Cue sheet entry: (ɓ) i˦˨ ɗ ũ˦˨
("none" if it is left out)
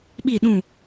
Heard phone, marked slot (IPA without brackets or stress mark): ɓ